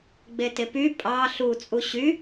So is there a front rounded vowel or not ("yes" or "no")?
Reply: yes